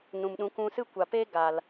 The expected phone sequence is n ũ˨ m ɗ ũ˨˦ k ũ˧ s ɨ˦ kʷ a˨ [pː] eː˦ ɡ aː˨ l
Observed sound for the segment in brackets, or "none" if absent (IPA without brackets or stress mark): p